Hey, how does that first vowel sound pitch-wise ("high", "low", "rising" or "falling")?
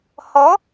rising